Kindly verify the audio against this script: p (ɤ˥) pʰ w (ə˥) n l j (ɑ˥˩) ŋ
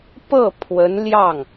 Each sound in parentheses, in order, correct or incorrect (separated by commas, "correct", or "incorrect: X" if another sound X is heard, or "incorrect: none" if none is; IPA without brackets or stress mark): incorrect: ɤ˥˩, incorrect: ə˧˥, correct